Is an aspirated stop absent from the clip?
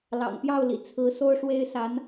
no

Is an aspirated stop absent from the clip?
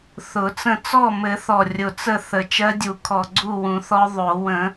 no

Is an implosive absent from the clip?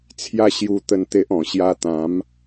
yes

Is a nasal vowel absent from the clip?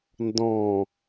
no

